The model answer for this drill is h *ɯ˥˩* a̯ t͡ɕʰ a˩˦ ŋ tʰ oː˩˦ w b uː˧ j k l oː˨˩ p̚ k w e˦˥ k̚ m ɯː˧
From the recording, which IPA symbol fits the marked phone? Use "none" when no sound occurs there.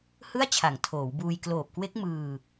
ɯ˥˩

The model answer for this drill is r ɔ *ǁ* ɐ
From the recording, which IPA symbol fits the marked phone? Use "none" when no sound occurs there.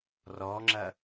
ŋ͡ǁ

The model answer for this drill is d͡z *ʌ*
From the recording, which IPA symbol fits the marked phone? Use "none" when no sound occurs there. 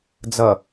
ʌ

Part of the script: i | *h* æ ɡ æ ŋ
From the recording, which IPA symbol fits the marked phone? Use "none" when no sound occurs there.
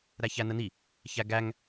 ç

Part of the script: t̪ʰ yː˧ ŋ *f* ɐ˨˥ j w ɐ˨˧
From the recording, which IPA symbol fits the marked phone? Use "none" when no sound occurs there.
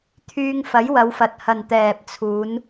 f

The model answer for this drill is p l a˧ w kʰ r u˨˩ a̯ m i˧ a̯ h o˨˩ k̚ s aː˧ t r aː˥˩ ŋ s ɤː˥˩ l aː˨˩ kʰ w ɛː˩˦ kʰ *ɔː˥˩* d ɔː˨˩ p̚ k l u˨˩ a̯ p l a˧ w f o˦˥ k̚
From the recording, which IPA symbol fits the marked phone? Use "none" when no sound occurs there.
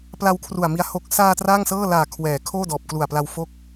oː˥˩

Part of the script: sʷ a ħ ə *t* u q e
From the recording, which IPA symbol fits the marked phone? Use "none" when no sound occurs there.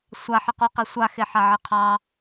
q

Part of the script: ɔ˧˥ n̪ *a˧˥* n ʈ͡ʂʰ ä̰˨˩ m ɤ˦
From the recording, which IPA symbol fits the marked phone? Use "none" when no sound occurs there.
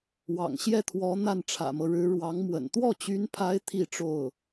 a˥˩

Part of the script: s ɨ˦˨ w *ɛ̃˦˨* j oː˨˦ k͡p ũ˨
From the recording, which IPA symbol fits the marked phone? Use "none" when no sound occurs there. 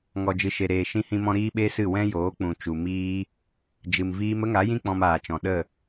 ɛ̃˦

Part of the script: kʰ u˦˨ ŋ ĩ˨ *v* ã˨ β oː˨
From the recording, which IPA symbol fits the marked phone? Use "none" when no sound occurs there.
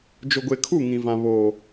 v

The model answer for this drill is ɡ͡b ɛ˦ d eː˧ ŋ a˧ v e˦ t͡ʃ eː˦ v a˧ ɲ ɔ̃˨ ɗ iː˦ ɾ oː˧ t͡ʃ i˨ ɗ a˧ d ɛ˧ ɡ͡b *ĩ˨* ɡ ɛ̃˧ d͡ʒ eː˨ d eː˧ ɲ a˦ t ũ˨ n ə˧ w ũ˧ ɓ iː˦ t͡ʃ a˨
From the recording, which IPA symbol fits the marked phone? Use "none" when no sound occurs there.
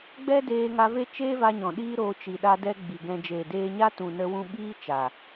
i˨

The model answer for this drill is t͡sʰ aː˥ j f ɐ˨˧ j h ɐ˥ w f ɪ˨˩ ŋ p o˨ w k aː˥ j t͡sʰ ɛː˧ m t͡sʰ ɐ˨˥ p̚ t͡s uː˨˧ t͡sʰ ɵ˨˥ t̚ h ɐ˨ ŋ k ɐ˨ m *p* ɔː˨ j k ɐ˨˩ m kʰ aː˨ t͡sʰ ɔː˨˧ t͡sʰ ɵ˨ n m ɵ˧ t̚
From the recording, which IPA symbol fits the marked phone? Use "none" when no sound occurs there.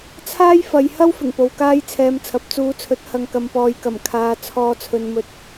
p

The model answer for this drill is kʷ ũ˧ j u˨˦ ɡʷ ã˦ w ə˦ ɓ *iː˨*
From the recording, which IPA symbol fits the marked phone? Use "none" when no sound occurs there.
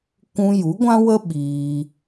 iː˧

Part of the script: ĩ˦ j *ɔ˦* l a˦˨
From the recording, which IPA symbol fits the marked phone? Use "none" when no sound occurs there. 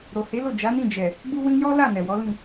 ɔ˦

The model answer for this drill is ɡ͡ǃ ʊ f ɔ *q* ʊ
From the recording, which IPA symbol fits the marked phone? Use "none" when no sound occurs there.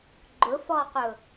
q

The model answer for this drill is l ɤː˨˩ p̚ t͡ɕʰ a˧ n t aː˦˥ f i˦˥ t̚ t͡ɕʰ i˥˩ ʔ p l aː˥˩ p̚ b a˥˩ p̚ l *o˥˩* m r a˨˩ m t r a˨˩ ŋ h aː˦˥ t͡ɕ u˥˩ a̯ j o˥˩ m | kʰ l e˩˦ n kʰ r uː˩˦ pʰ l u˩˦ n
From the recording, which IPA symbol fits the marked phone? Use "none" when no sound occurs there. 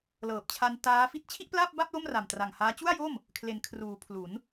o˥˩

